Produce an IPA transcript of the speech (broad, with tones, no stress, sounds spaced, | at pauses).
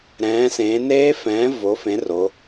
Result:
ɾ ɛ̃ː˩˧ s ẽː˩˧ n eː˦˥ f ɛ̃ː˨˥ v o˨˥ f ẽ˨˥ r o˩˧